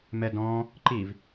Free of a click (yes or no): no